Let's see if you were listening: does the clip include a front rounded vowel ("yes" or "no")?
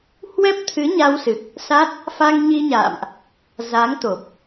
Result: no